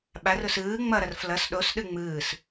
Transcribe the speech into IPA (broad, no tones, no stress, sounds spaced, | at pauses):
ɓ a r ʊ s ɯː ŋ͡m ʌ ɾ ʌ r f l ʌ s ɗ o s ɗ ɯ ŋ͡m ɯː s